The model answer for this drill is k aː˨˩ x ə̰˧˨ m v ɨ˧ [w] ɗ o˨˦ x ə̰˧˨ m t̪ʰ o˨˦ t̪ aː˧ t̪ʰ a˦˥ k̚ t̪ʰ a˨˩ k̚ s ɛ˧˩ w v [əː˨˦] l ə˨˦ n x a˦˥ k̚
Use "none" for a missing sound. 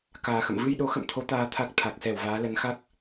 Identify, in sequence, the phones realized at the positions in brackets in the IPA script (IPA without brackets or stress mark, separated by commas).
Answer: j, aː˨˦